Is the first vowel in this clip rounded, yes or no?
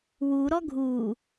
yes